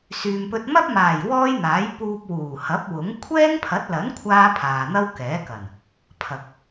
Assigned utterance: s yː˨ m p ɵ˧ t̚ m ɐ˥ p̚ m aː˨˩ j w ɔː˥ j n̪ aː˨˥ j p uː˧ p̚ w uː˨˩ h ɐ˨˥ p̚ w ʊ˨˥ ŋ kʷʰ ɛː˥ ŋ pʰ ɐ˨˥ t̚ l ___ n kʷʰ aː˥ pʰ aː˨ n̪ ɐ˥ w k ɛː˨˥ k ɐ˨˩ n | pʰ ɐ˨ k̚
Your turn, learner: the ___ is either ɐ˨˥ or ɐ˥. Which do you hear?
ɐ˨˥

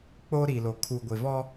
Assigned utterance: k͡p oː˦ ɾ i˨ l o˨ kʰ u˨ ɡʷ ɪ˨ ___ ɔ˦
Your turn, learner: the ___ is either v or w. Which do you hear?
v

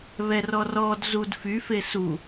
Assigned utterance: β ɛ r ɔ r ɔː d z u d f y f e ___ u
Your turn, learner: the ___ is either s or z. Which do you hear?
s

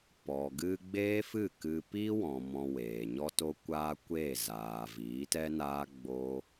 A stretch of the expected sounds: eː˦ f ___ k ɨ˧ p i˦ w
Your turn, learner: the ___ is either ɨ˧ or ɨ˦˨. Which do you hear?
ɨ˦˨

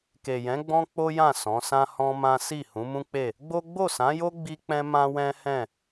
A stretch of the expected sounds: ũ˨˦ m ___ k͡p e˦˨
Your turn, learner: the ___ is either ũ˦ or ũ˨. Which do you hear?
ũ˦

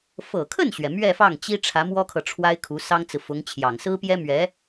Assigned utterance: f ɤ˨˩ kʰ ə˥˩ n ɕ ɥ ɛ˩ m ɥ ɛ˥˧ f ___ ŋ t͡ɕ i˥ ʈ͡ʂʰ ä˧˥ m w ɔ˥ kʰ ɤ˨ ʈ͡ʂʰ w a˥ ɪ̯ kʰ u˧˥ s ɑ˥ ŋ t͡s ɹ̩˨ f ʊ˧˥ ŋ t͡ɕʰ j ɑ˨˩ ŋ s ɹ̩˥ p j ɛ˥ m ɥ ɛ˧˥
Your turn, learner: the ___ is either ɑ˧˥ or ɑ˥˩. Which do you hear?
ɑ˥˩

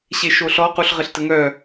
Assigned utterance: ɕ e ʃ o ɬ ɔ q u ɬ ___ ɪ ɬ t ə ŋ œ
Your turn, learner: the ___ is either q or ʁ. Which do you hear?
ʁ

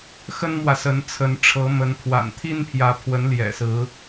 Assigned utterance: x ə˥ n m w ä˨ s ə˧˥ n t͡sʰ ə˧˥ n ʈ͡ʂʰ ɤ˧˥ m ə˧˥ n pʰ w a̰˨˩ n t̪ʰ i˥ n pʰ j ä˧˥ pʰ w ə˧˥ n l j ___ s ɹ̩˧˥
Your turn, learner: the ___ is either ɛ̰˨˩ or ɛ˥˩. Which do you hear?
ɛ̰˨˩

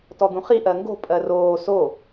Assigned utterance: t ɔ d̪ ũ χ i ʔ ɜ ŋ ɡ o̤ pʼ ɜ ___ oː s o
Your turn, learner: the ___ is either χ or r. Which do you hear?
r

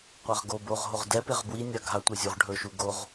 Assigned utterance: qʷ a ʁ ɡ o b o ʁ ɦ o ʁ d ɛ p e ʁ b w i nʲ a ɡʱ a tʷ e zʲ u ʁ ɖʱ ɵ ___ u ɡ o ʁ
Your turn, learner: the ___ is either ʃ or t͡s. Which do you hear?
ʃ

